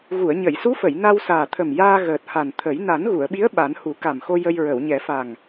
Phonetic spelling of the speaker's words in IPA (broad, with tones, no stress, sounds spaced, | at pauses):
ɣ u˨˩˨ ə̯ ɲ ə˨˩˨ j s u˧˥ f ə˨˩˨ j n a˧ w s aː˨˩ t̪ʰ ə˨˩ m j aː˧ ɣ əː˨˩ t̚ h a˨˩ n t̪ʰ ə˨˩˦ j n a˨˩˦ n ɣ u˨˩˨ ə̯ ɓ i˧˥ ə̯ ɓ a˨˩˦ n h u˨˩˦ k a˨˩ m x o˧ j ə˧ j ɹ ə˨˩˨ w ɲ ɛ˨˩˦ f a˨˩ ŋ